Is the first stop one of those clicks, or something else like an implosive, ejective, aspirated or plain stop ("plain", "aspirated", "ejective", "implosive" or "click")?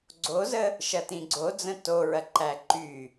click